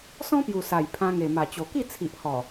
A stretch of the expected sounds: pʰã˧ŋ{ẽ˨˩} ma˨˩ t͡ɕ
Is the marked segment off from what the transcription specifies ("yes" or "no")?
yes